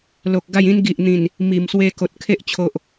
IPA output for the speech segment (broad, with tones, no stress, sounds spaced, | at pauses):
l o˨ k̚ ɡ a˥˧ j ĩ˦ n ɡ i˨ ʔ n̪ ĩ˨˩ n | m i˨˩ m s w e˧ k o˨ t̚ kʰ e˦ ʔ t͡ɕʰ o˨ ʔ